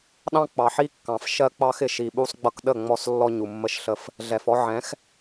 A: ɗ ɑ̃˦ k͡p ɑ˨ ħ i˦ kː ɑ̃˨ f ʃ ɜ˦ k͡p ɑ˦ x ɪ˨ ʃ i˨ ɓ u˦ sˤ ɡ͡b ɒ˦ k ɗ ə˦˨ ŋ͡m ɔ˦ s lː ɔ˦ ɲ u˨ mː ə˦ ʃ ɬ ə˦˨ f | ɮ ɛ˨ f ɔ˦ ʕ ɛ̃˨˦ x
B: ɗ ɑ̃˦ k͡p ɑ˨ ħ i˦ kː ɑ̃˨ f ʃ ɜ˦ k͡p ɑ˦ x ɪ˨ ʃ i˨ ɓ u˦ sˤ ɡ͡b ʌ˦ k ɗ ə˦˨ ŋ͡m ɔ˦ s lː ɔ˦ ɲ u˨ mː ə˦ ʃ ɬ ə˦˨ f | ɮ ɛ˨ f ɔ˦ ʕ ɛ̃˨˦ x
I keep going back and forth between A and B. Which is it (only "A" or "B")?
B